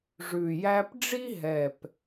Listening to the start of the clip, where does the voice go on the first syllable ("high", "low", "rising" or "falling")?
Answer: low